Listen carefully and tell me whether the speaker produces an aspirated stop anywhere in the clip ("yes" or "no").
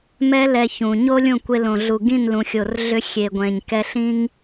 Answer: no